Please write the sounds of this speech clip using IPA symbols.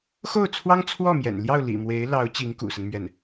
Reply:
x o˥˩ ʊ̯ t͡sʰ w ɑ˥ ŋ t͡sʰ w ɔ˥˩ m j ɛ̰˨˩ n l j ɑ˥˩ ʊ̯ l ḭ˨˩ m w e˧˥ ɪ̯ l ɑ˧˥ ʊ̯ t͡ɕ i˧˥ ŋ k ṵ˨˩ s ə˦ n m ɥ ɛ˥˩ n

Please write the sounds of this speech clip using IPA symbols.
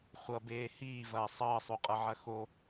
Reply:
χʷ ʌ b eː h iː v ɐː sˤ ʌː sˤ o qʼ ʌ ʕ ɐ x o

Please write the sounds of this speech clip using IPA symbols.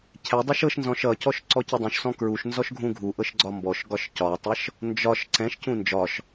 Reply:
cʰ ɛ dˤ ɛ ʃ ɤ ʃ n z ɔ̃ ʃ ʌ c ɔ ʃ ǀ ɔ c ɤ dˤ ũ ʃ s ɔ̃ k ɹ u ʃ n z ɔ ʃ ɡʱ ũ ɡʱ u ʔ ɤ ʃ ɡ͡ǀ ɒ m b ɔ ʃ ɡ ɒ ʃ c ɒ tˤ ɤ ʃ | n d͡ʒ ɒ ʃ ǀ ɛ̃ ʃ c ũ n d͡ʒ ɒ ʃ

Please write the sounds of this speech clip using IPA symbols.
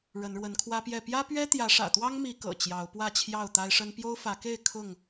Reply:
ɻ ə˨˦ n ɻ w ə˨˦ n kʰ w ä˦ p j ɛ˥˨ p j ä˦ p ɥ ɛ˦ t̪ j ä˨˦ ʂ ä̰˨˩ t̪ w ɑ˦ ŋ m i˨˦ k ɤ̰˨˩ t͡ɕ j ɑ˨˦ ʊ̯ p w ä˥˨ t͡ɕʰ j ɑ˥˨ ʊ̯ t̪ a˦ ɪ̯ ʂ ə˦ n p j o˦ ʊ̯ f ä˨˦ k e˥˨ ɪ̯ kʰ ʊ˥˨ ŋ

